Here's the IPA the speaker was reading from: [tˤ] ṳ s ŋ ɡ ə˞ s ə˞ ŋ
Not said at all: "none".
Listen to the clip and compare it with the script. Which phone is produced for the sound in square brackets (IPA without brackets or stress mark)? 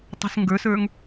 tˤ